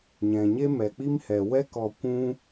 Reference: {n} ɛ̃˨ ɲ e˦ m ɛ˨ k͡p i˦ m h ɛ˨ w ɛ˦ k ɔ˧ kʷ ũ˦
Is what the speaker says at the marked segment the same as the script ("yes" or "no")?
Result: no